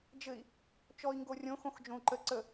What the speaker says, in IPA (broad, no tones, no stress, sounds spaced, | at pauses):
d͡ʒ ɘ i̯ | t͡ʃ ɔ i̯ ŋ ɡ o rʲ õ x õ x d͡ʒ õ u̯ ǃ ə ǀ ə